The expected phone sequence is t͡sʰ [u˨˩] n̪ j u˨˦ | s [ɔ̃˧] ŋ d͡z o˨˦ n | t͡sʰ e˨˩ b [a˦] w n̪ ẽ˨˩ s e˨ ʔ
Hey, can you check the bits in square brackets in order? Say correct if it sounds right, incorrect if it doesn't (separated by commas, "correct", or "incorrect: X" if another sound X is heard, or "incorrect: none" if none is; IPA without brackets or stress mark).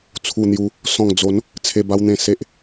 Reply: correct, incorrect: ɔ̃˨˩, incorrect: a˧